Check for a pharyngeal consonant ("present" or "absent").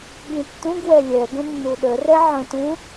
present